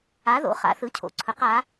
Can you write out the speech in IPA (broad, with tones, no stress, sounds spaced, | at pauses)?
a˩˥ ð o̰˩˧ χ a̰˩˧ θ ɯ˩˥ cʰ o̰˩˧ ǀʰ ɵ˩˧ q a˩˧